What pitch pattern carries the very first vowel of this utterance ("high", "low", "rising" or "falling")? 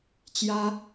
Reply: high